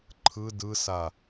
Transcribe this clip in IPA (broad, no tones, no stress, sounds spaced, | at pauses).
ǃʰ ɯ d ɯ s a